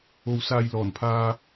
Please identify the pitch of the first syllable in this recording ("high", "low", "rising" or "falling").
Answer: low